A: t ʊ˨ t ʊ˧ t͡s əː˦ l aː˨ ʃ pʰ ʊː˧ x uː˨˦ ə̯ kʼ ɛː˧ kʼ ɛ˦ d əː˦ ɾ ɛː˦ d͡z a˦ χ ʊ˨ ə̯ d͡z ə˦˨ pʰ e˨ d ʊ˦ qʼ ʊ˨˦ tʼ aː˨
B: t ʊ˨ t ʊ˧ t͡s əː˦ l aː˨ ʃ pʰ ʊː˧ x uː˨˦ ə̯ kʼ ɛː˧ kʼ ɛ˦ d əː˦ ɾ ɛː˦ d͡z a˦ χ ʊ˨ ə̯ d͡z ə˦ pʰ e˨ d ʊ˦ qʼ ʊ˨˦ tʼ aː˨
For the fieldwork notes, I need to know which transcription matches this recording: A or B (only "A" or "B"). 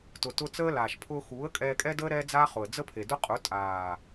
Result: B